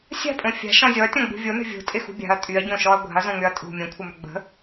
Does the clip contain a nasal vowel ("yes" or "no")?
yes